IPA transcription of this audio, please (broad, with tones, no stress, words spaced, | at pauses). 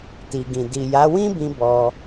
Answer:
ti˨ɡĩ˨ di˨ja˨˦ wĩ˦bĩ˧ bɔ˧